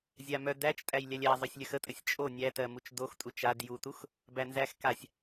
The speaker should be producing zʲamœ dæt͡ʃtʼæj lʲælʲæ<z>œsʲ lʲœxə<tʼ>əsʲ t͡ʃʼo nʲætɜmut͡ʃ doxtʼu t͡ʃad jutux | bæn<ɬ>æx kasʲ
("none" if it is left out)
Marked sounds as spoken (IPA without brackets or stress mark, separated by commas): zˤ, tʼ, z